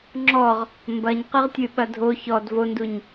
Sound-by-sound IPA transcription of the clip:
ŋ͡ǁ ɔ ʁ | m b ɐ ɲ q ɨ ʁ tʲ ɨ ɓ ɐ dʱ o ç ɔ d v o n d u ɲ

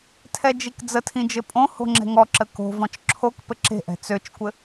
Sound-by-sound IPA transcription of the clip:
tʰ ɛ d͡ʒ i k d͡z ə tʰ ĩ d͡ʒ ɘ pʼ õ h o̤ ŋ͡ǁ ɛ̤ ŋ ɔ ǁ ə k o̤ v ɔ̃ t͡ʃ ǁʰ o k p ɘ ǁ e̤ ʔ ɛ̤ t͡s ø t͡ʃ kʷ ɘ

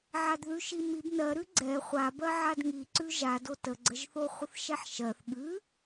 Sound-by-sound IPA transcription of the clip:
ʕ a d ð ʉ ʃ i m i b n ɜ ɾ ʉ ɡ͡ǀ ɛ χʷ a b ɜ ʕ a d ŋ i ǀ ʉ ʒ a d o t ə ɡ͡ǀ ə ʒ θ o χʷ ə θ ʃ ɛ ħ ʃ ɜ θ ɠ ʉ

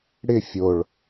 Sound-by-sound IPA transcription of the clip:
ɽ ɪ fʲ o ɭ

